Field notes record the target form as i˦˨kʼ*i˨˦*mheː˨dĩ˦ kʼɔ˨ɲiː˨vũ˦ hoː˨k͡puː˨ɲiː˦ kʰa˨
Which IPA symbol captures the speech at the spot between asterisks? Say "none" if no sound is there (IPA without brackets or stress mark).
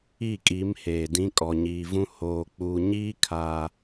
i˨˦